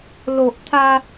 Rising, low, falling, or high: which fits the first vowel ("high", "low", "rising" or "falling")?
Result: low